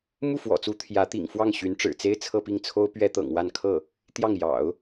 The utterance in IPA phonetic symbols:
m u˥˩ f w ɔ̰˨˩ t͡s u˧˥ t̪ʰ j ä˧˥ t̪ ḭ˨˩ ŋ f w ɑ˥˩ ŋ ɕ y˧˥ n ʈ͡ʂ ɻ̩˨˩ t͡s e˥ ɪ̯ t͡sʰ ɤ˥˧ p i˥˩ ŋ t͡sʰ o˥ ʊ̯ p ɥ ɛ˥ t̪ ɤ̰˨˩ ŋ w a˥˧ n kʰ ɤ˥˩ | t̪ j ɑ˥˩ ŋ j ɑ̰˨˩˦ ʊ̯

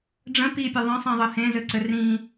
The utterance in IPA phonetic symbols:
ɖ͡ʐ ə̃ p i pʲ ə ðˤ ə̃ sˤ ĩ ðˤ ɘ h ẽ z ɘ ǀ ɘ r ĩ

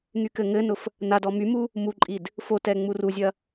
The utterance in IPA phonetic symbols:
ŋ y k ɘ ŋ ɘ n ʊ f | n a d ɔ m y m u | m u ǃʼ i d | f o t ɛ ŋ͡m u r u zʲ ɐ

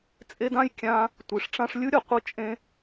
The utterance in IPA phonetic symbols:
t͡sʼ e˦ d ã˥ j kʲ ã˦ | tʷ i˩ ʂ ʈ͡ʂ ã˦ ʂ lʲ ɯ˥ ɾʲ ʌ˩ qʷ ɯ˦ t͡ʃʼ ẽ˦

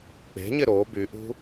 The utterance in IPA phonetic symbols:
k͡p e̤ ɲ ɪ ɾ o b y ʔ ṳ

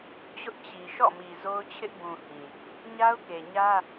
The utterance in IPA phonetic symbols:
t͡ɕ ʊ˦ ʔ t͡ɕ i˨ ʃ ɔ̰˦˨ m i˨ z o˦ ʊ̯ t͡ɕʰ ɪ˦ ʔ b ũ˨ h ĩ˨ | ɲ a˦ ʊ̯ k e˨ ɲ ä˦

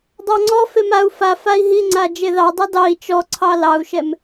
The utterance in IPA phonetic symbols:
dˤ ɑ ŋ͡ǀ ɔ f e m a u̯ f a f a i̯ ɦ i ŋ͡ǀ a d͡ʒ e ð ɑ dˤ i d ɑ i̯ t͡ʃ ɔ ǀʰ ɑ l ɑ u̯ ʃ ɛ m

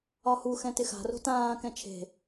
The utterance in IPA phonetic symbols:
ɒ h u x ɛ̃ t ɪ x a̤ r o̤ t ãː k ɛ̃ t͡ʃʰ e̤

